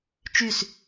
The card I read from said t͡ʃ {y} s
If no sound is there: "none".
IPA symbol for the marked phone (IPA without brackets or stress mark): y